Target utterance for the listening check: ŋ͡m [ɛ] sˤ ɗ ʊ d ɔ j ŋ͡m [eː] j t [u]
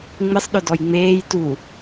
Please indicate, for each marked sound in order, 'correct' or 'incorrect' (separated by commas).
incorrect, correct, correct